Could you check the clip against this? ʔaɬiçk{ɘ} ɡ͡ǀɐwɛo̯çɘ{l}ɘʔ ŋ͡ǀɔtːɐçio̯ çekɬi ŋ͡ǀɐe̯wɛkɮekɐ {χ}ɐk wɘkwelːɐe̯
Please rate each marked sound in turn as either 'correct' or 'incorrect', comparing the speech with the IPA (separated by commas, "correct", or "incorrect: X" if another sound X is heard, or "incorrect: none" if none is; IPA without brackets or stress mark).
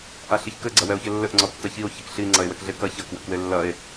correct, incorrect: lː, incorrect: ç